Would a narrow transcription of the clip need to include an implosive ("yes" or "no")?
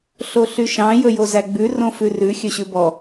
no